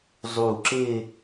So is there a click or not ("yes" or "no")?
yes